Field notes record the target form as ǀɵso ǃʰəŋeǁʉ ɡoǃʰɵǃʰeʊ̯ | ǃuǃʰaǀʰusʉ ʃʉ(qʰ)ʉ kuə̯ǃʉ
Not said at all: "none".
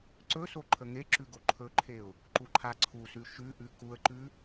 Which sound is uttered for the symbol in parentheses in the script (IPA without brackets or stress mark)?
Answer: ʔ